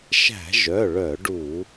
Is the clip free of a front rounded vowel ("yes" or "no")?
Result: no